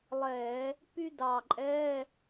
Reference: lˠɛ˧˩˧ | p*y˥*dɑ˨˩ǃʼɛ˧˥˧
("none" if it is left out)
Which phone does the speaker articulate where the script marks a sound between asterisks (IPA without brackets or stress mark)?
y˥